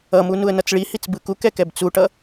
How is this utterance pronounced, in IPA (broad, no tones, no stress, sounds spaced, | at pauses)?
ʌ m u n u ə̯ n ʌ t͡s ɭ i h i t͡s b ɯ k u k ɛ k ɛ b t͡s u ʈ ʌ